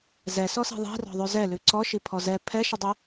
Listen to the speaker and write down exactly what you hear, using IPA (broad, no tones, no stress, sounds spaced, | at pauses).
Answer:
z ɛ s ɔ s i̤ ðˤ i̤ r ɔ̤ ðˤ ʉ z ɛ l ʉ ǀ ɔ ʃ i pʰ ɔ z ɛ pʰ ɛ ʃ i dˤ y